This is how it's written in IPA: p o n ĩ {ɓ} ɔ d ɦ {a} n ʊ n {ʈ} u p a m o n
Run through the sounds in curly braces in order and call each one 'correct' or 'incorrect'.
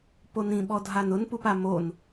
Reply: correct, correct, incorrect: p

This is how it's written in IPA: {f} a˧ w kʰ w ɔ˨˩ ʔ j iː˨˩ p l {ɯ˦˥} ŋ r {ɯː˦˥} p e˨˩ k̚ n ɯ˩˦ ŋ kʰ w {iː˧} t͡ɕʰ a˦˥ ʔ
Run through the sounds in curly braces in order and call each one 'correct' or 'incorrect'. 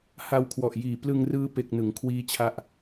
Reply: incorrect: h, incorrect: ɯ˧, correct, incorrect: iː˦˥

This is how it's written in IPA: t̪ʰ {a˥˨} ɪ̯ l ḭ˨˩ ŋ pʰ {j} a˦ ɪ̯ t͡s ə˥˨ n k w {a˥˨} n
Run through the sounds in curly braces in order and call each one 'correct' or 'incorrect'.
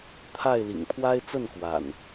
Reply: correct, incorrect: w, incorrect: a̰˨˩

